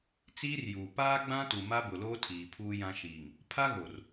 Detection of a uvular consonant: absent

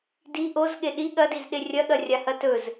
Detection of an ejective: absent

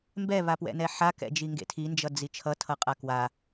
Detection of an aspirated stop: present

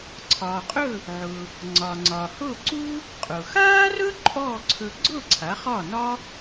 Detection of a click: present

